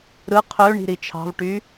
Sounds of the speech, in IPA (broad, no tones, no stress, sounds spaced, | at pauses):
ɾ ɯ qʰ ø ɳ i̤ ɾ i t͡ʃʰ ɑ̤ v ʈ y